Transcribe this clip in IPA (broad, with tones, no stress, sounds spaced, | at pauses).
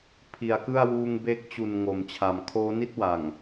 pʰ i˩˦ a̯ k ɯ˥˩ a̯ w uː˧ ŋ b e˦˥ k̚ t͡ɕ u˨˩ n ŋ o˩˦ m t͡ɕʰ a˨˩ m kʰ oː˦˥ n i˥˩ t̚ w a˨˩ ŋ